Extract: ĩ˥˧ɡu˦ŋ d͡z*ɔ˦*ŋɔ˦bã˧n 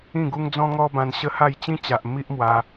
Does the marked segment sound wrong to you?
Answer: yes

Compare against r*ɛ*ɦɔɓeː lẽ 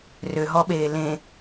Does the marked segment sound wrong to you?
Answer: yes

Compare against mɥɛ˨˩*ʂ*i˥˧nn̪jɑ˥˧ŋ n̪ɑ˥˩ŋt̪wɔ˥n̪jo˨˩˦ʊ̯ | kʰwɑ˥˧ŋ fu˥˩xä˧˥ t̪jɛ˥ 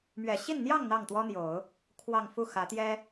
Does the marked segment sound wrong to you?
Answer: yes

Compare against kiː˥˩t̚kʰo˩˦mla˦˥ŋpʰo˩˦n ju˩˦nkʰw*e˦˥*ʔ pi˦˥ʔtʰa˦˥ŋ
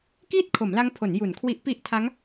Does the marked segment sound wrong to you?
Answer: yes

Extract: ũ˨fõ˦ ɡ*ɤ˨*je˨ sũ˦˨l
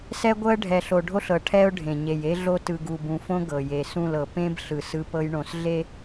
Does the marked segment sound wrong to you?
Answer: no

